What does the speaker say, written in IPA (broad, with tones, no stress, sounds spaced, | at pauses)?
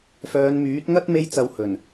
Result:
f œː˨˧ n m yː˨˥ t̚ ŋ ɐ˥ t̚ m e˥ j t͡s ɐ˧ w h ɵ˨˩ n